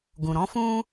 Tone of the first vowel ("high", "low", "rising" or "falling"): low